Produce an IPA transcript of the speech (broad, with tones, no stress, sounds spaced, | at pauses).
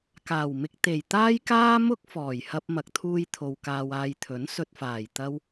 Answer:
k aː˨˩ w m ɪ˧ k̚ t̪ e˨˩ j t̪ aː˥ j k aː˥ m ʊ˥ k̚ f ɔː˨˩ j h ɐ˧ p̚ m ɐ˨ k̚ t̪ʰ uː˧ j t̪ʰ o˨ w k aː˧ w aː˧ j t̪ʰ ɵ˨˥ n s ɵ˧ t̚ f aː˨˩ j t̪ ɐ˥ w